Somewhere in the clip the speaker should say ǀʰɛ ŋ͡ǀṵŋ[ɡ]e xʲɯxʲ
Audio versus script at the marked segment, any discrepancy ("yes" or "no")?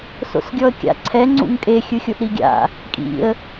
yes